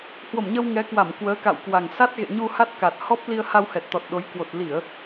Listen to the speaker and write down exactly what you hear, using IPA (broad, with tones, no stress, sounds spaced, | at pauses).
h w o˧˩ m ɲ ə˧ w ŋ ɛ˨˦ k w a˧˩ m k w əː˨˦ k a̰˧˨ w k w a˨˩ ŋ s a˦˥ t̚ ɣ ḛ˧˨ ɲ u˧ h a˦˥ t̚ k a˨˩ t̚ h ɔ˦˥ p̚ l i˧ ə̯ h a˧ w h ɛ˨˩ t̚ t̪ ɔ˨˩ t̚ ɗ o˨˦ j k w o˨˩ t̚ l i˧˩˨ ə̯